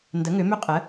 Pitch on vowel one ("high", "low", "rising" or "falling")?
rising